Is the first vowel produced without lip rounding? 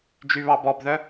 no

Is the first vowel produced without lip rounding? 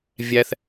yes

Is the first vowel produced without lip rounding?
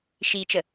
yes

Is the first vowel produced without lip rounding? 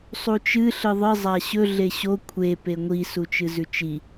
no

